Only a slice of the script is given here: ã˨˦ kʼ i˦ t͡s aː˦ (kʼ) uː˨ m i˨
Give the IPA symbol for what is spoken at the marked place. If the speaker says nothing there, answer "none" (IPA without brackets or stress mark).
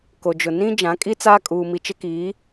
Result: kʼ